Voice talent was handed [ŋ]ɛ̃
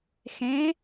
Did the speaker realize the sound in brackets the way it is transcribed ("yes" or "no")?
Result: no